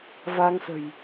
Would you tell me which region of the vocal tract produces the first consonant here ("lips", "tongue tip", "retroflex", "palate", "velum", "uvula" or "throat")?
lips